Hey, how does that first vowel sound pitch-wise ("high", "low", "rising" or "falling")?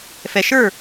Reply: low